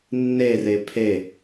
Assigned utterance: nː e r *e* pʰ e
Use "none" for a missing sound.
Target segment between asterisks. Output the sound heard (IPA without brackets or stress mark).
e